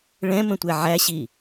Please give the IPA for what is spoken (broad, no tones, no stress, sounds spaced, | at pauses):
ɭ ɛ̃ m ə̃ tʷ ɛ ʕ æ ɕ i